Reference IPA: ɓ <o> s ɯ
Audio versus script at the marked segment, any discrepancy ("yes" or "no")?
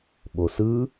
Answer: no